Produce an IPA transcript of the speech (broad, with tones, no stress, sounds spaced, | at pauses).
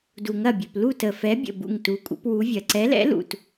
d u˨ ŋ ɐ˦˨ bʲ ɵ˨ p l u˦˨ t ə˨ f ɛ˧˥ bʲ ə̰˦˨ b ṵ˦˨ ŋ t u˧˥ kʷʼ ə̰˧˥ p w u˧˥ vʲ ɐ˨ ǀ ɛ˧˥ l ɛ̰˧˥ l ṵ˨ t